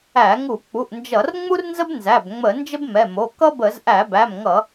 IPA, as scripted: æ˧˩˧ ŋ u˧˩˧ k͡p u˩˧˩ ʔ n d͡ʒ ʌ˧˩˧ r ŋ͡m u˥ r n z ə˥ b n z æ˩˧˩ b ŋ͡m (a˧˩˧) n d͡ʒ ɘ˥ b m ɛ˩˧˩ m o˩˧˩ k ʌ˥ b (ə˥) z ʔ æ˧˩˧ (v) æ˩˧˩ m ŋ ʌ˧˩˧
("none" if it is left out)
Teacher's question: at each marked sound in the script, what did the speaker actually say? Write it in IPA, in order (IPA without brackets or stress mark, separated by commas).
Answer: ə˧˩˧, ə˧˩˧, b